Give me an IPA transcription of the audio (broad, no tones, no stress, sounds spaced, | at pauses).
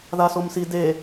ð a s o m s i d e